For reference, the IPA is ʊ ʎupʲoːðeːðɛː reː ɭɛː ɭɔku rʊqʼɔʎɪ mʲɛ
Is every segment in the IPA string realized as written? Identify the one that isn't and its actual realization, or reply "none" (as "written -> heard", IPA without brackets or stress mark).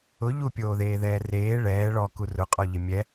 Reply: none